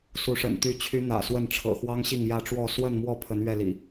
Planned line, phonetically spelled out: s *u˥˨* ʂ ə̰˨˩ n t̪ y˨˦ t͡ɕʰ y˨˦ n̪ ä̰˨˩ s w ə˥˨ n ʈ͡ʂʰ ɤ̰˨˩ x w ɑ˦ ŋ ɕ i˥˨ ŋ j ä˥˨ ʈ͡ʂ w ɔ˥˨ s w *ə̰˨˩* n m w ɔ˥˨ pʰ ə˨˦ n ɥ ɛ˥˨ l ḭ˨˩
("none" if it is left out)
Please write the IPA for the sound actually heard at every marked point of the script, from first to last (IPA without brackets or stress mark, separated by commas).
u˨˦, ə˥˨